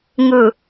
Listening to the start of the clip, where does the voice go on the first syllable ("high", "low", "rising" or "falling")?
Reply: low